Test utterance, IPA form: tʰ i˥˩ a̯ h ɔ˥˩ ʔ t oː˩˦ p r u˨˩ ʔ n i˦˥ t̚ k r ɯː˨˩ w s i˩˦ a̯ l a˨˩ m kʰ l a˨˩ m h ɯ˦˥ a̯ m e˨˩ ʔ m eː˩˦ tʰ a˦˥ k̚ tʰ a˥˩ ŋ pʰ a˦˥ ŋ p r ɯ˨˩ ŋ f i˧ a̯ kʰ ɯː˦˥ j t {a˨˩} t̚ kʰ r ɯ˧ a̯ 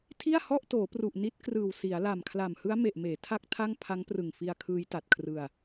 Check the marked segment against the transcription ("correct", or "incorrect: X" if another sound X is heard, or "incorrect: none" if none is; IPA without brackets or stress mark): correct